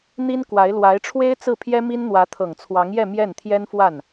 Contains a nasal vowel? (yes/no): no